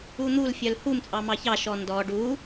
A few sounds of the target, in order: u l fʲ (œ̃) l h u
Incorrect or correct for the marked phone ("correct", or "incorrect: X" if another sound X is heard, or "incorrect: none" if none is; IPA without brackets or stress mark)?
incorrect: œ